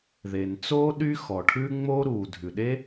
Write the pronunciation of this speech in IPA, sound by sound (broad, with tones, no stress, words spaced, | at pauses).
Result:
ðe˩nt͡soː˥ ɗy˥xɔ˩ʈʰʉ˥ ŋ͡mo˥ɾu˩ dʱʉ˩ɗe˥